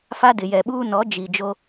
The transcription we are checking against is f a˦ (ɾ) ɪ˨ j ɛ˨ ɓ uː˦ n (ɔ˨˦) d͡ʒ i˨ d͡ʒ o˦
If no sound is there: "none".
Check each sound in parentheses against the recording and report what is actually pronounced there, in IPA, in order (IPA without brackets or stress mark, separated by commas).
d, ɔ˨˦